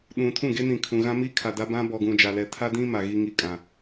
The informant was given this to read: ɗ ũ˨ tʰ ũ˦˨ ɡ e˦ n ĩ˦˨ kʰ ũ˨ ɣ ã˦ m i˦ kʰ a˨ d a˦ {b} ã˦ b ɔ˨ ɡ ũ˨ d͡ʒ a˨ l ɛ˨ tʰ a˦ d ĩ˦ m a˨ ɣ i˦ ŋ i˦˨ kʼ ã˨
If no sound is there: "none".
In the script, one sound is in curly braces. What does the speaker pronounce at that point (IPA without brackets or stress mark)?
b